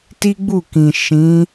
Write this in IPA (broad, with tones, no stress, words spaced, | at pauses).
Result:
ti˦ɡ͡bu˦˨kĩ˨ ʃĩ˨˦